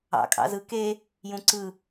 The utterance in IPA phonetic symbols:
ɑ̰ kʼɑ̰zɯ ke | jũǀɯ

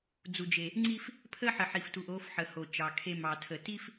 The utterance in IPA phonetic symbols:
d͡zu˨d͡ʒe˨ | ŋ͡ǀi˦f | pʰə˦ħə˨ ħi˨ftu˨ʔo˨˦fħə˨ ho˨t͡ʃɑ˨kʰe˦ mɑ˨tʰə˨ ti˦f

